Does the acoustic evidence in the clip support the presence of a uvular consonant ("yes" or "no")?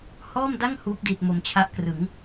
no